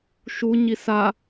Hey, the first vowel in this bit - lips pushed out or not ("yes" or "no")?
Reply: yes